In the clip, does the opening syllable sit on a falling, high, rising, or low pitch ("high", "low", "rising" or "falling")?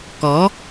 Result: rising